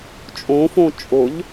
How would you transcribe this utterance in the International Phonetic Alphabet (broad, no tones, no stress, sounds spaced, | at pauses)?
t͡ʃʼ õ f õ t͡ʃʼ ʊ ʎ